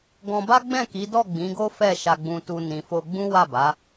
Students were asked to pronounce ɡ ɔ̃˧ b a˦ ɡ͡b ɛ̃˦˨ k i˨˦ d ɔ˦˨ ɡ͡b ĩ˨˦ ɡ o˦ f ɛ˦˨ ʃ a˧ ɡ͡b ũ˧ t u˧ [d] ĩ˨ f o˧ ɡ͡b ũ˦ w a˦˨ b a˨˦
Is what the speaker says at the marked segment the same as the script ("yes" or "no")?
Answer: no